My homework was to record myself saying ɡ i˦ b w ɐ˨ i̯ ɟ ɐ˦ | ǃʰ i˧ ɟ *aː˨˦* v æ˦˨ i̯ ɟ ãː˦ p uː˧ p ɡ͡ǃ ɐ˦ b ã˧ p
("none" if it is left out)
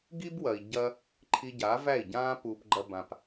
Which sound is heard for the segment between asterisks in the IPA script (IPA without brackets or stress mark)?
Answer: aː˨˦